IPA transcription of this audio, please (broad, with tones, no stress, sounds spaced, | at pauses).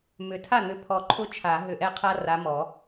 m ʏ˨˩˦ tʰ a˥˩ n̪ ʏ˨˥ pʰ ɔ˧˩ ǃʰ ʊ˦ t͡ʃʰ a˨˩˦ ɦ ʏ˧˩ ʔ ɛ˦ qʰ a˦ r a˨˥ m ɔ˨˩˦